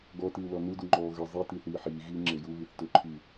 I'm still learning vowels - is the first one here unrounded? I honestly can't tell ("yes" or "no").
no